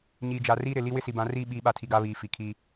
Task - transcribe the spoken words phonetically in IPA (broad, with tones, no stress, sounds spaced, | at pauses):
ɲ iː˨ d͡ʒ a˨ r iː˦ ɾ ɪ˨ l i˦ w ɪ˦ s i˨ b ã˨˦ r iː˦ ɓ iː˨˦ ɓ a˨ tʰ i˨ ɡ a˦ β iː˨ f i˨ kʰ i˦